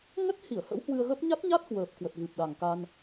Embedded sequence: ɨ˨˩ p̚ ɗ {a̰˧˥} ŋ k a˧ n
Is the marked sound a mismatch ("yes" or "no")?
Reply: yes